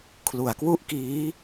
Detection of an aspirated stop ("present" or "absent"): present